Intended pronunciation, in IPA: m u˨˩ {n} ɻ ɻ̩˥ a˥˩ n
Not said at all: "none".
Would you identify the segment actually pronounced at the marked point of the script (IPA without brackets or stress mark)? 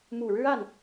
none